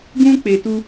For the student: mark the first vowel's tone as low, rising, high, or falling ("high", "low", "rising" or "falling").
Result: high